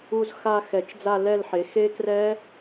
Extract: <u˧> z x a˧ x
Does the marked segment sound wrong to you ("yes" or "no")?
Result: no